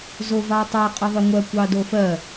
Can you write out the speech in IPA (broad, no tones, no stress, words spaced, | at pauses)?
zovɑtˤa qʼəðˤʏŋʷɜ kʷɑdofɜ